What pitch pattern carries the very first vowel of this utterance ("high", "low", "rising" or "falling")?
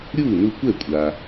falling